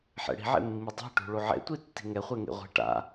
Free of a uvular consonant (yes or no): no